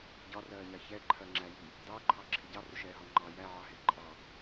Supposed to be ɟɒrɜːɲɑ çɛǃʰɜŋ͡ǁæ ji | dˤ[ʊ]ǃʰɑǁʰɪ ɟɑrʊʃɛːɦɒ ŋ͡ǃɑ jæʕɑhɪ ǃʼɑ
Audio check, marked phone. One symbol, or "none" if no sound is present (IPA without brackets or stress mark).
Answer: ʊː